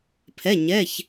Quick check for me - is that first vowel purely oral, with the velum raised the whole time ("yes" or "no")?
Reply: yes